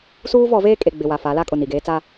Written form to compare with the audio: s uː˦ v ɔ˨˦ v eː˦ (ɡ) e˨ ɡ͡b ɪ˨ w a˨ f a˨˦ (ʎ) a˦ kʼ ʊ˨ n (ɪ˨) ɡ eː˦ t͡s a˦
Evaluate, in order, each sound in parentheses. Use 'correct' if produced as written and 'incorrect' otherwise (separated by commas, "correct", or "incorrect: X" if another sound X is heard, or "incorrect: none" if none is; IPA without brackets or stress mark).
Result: incorrect: kʼ, incorrect: l, incorrect: i˨